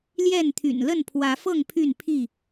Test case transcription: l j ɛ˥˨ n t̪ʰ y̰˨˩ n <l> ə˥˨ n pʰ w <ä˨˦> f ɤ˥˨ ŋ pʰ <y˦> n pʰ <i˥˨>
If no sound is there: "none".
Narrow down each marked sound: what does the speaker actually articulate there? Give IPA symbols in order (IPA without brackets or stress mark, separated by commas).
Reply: l, ä˨˦, y˥˨, i˥˨